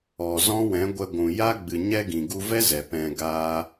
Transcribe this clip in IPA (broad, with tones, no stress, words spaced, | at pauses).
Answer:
ɔ˨zɔ̃˦wɛ̃˨˦ɡʷɛ˧ ɡʷũ˨ja˦ ɡ͡bɨ˨ɲɛ˧ ɡĩ˨ɡu˧vɛ˦ zɛ˨pɛ̃˧ɡaː˦